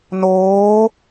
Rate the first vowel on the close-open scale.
mid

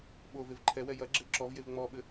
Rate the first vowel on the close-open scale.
mid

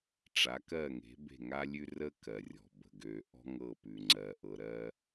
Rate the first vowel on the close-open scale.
open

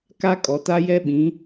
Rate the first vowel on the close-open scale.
open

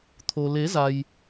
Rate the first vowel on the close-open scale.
mid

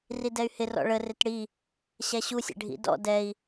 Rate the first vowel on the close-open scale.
close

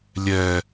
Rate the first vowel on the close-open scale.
mid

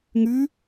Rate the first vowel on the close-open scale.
close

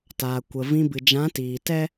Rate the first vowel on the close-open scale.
open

